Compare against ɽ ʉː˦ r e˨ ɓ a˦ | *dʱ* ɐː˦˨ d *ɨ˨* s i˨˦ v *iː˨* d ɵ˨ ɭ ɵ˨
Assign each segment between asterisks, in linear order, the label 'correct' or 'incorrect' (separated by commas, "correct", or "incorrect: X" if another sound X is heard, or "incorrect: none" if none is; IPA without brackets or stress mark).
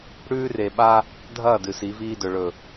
correct, correct, incorrect: iː˦